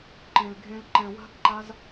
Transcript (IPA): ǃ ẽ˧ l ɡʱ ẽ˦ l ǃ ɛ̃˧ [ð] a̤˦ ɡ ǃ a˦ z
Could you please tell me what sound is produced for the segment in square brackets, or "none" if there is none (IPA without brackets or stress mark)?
w